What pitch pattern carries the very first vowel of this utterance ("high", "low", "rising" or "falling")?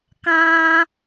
high